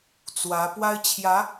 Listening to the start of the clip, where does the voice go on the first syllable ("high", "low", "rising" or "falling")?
rising